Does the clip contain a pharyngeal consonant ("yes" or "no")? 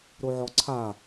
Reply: yes